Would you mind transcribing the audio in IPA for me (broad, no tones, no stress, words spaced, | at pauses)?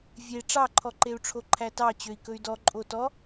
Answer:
vʲe ʈ͡ʂɑǃʰɔǃeu̯ʈ͡ʂʰo ǃʰætɑ t͡ɕøi̯kɵy̯dɔ ǃʼotɔ